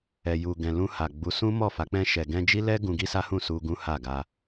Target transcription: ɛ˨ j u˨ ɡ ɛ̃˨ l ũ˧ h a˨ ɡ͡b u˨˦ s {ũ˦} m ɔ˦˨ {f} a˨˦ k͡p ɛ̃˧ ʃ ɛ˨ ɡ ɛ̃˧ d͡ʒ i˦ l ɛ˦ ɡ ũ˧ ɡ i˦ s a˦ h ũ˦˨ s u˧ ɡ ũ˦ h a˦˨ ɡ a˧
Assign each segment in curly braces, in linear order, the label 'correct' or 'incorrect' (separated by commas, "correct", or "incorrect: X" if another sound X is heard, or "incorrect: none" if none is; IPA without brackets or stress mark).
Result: correct, correct